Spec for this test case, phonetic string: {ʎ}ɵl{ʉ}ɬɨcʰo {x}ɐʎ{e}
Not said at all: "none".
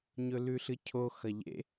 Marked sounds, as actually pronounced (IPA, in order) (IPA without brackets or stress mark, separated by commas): ɲ, ʉ, x, ḛ